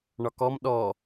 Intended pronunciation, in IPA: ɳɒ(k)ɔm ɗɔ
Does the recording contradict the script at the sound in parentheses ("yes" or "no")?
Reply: no